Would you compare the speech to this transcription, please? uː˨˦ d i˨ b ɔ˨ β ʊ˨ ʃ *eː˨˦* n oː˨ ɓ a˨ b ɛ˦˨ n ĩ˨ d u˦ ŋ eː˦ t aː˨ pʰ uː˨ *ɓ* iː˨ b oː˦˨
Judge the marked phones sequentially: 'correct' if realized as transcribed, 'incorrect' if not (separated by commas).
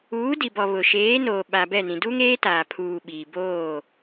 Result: correct, correct